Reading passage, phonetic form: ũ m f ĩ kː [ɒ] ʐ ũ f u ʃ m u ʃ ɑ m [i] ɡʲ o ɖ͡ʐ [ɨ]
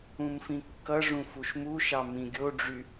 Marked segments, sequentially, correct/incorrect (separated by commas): incorrect, incorrect, incorrect